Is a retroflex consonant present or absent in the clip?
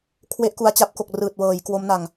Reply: absent